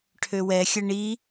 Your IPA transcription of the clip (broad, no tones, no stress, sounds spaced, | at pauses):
ʈʰ ø w ɛ xʲ ə ɳ i